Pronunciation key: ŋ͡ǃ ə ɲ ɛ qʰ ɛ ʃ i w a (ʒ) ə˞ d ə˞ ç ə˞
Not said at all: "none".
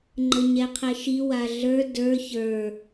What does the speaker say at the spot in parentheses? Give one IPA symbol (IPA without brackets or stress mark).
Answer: ɮ